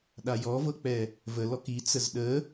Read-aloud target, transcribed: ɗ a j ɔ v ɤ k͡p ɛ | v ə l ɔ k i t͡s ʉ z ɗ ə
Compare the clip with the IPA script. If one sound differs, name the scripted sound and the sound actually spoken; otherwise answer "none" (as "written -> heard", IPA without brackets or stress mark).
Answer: ʉ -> ə